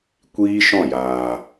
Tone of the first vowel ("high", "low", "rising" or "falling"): high